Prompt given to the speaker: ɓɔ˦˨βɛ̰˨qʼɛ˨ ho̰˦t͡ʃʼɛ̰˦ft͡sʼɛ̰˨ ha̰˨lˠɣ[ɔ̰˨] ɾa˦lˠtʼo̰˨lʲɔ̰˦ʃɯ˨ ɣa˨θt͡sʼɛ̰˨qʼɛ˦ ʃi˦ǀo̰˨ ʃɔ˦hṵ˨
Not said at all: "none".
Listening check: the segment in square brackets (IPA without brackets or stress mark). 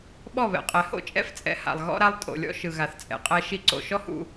ɔ̰˦